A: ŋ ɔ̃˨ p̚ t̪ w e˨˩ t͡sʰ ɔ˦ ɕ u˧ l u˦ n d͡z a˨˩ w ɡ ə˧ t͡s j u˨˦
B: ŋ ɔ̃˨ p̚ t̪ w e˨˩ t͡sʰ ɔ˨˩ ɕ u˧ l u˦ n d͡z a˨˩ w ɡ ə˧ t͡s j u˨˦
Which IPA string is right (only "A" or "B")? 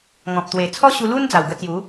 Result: A